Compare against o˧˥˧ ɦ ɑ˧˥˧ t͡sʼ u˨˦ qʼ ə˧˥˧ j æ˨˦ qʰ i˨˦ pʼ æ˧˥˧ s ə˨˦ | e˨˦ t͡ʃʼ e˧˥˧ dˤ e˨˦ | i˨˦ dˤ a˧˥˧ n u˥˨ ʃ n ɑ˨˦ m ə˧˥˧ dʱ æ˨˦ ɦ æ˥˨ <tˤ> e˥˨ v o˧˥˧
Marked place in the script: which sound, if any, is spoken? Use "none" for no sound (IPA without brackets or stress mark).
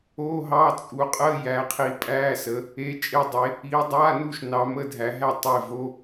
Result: tˤ